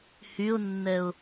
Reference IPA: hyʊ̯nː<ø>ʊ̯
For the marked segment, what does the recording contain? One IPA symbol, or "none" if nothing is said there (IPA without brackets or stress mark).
ɛ